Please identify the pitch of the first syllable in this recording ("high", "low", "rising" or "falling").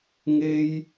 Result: high